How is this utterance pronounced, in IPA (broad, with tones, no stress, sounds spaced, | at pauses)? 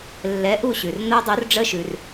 lː ɛ˨˥ ʔ u˦˨ ɕ ʉ˩ r n o˦˥ dˤ o˨˥ r ɖ͡ʐ ə˦˥ ʃ ʉ˩ r